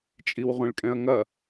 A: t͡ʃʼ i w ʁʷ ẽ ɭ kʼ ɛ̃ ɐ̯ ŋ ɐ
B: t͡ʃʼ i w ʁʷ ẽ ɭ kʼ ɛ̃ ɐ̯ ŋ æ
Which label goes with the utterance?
A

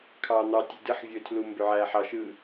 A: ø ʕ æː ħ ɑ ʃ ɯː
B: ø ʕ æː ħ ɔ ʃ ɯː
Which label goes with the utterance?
A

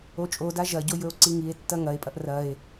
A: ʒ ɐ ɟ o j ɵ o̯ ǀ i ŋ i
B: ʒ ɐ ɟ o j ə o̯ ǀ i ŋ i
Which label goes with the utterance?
A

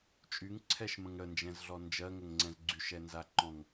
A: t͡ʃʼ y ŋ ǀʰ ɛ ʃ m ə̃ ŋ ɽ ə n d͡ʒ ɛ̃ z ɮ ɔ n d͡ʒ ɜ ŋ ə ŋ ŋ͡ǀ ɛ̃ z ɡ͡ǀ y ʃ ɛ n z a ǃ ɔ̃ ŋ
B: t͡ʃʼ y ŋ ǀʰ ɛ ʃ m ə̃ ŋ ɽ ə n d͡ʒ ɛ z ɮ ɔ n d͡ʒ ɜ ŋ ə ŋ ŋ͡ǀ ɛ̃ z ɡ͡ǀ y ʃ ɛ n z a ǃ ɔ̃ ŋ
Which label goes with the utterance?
A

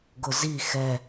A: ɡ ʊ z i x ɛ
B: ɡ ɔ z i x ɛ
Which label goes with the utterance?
A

